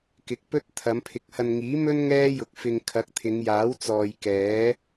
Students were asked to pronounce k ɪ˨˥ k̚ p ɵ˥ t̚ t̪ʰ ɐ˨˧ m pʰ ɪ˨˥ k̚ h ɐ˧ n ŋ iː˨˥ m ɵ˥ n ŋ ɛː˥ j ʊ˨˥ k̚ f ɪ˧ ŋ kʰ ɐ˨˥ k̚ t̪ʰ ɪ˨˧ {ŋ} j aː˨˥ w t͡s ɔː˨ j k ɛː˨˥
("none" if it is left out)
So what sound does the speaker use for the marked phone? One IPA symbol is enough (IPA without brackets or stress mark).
ŋ